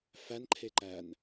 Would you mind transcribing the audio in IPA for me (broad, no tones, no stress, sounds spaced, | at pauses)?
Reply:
f æ n ǃʰ e ǃ æ n